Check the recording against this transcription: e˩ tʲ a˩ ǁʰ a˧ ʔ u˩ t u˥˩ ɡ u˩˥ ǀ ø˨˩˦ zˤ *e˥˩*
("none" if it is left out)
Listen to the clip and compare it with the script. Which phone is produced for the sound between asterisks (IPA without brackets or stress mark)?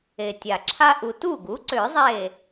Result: e˧˩